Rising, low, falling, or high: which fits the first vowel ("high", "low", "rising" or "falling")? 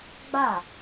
falling